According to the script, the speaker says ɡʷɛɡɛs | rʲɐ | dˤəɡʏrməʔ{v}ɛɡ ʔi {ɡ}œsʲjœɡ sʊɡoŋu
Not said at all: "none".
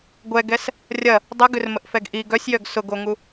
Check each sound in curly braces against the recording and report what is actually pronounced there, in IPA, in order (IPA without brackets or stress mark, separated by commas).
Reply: f, ɡ